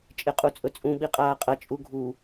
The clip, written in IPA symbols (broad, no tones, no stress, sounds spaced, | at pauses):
t͡ʃʼ e qʼ u t͡sʼ ɵ t͡sʼ ũ ɓ i qʼ aː qʼ ɐ t͡ʃʼ u ɡʱ u